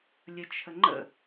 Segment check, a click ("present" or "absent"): present